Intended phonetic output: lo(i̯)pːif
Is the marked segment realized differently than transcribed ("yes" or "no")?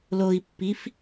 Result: no